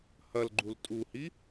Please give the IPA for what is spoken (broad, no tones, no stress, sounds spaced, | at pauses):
h ɐ l ɡ͡ǃ u l tʼ u h i